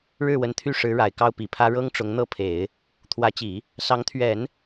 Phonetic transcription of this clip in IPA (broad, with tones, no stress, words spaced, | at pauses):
ɻɻ̩˥˩wə˧˥nt̪ʰy˥˩ʂɻ̩˧˥ ɻa˨˩ɪ̯kɑ˥˩ʊ̯pi˨˩pʰä˥ ɻɤ˥ŋ ʈ͡ʂʊ˧˥ŋn̪ɤ˥˩pʰe˨˩˦ɪ̯ | t̪ʰwä˧˥t͡ɕi˨˩˦ | sɑ˧˥ŋt̪ʰɥɛ˨˩˦n